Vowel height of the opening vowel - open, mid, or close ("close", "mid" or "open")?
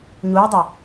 close